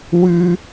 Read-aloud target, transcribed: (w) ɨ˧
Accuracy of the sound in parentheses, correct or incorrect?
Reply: correct